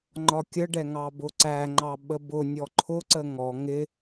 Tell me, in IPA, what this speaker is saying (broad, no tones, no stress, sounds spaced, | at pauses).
ŋ͡ǃ ɒ kʲ ə ɖ ɛ ŋ ɑ b ʊ ǀ æ ŋ͡ǃ ɑ ɓ ə b ʊ nʲ ɔ ǃʰ ʊ ǀ ə ŋ ɔ ŋ ɪ